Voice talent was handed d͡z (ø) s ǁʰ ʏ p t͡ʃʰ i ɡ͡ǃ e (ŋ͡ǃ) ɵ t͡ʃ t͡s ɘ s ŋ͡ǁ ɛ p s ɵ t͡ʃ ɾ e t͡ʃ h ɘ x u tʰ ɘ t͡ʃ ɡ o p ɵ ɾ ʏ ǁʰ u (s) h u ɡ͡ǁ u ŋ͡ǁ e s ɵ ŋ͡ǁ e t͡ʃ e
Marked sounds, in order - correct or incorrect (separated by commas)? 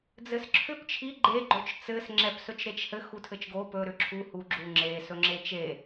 incorrect, incorrect, incorrect